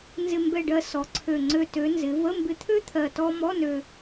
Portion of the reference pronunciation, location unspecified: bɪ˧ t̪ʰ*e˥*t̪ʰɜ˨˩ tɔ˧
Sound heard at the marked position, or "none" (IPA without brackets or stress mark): ø˥